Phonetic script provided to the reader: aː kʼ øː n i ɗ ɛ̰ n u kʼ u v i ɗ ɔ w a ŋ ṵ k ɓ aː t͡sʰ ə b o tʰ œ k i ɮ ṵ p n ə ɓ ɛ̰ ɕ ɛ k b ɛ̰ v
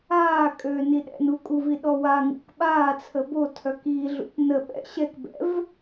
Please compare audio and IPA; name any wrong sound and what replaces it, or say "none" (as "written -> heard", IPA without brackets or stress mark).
none